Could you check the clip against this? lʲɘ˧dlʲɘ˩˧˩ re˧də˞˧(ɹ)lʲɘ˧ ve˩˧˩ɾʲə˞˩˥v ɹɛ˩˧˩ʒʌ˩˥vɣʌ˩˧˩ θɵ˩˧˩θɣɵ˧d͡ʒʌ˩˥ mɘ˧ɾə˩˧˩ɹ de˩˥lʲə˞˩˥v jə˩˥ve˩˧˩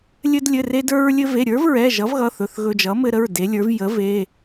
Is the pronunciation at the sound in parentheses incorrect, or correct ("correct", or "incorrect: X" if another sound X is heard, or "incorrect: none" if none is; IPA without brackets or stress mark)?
correct